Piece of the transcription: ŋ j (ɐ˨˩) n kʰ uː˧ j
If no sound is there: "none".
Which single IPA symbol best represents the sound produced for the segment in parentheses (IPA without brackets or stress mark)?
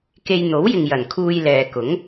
ɐ˨˩